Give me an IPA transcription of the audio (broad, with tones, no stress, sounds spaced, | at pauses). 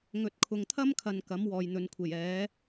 ŋ ɵ˨ t̚ kʰ ʊ˨ ŋ t̪ʰ ɐ˥ m kʰ ɐ˨ n k ɐ˨˥ m w ɔː˨ j n̪ ɵ˨˧ n kʷʰ e˨˩ j ɛː˨˥